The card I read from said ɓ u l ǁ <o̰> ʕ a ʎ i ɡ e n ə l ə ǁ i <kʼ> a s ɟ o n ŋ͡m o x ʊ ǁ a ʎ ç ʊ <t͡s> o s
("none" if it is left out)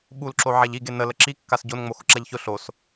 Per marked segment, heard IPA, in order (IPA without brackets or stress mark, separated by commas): o, kː, ɬ